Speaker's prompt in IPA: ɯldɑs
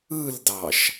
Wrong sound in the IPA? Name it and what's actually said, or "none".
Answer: s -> ʃ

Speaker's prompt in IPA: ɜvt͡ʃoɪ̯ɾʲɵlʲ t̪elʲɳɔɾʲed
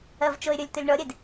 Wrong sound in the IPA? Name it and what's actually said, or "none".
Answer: none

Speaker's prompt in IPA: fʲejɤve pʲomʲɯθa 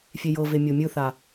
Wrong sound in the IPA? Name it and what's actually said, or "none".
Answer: pʲ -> mʲ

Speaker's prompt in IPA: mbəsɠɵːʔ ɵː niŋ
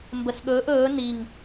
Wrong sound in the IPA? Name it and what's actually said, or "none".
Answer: none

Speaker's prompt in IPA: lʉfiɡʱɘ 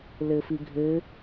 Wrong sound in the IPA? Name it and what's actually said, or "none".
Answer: ʉ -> ɘ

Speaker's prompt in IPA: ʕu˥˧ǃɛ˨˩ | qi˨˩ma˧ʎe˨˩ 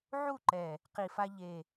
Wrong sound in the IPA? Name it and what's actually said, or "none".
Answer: m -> f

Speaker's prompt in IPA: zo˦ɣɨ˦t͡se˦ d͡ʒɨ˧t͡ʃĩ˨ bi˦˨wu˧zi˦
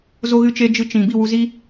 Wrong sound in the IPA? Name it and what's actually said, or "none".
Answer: t͡s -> t͡ʃ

